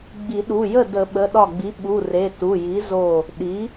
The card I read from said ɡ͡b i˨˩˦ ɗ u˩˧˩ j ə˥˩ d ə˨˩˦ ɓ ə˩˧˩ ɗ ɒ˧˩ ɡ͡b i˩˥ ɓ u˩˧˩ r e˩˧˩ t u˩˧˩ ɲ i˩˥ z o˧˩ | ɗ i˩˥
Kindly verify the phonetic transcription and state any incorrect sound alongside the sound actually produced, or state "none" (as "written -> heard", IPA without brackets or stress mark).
ɲ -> j